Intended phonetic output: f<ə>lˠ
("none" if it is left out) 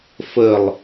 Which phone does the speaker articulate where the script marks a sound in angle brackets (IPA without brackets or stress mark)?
ə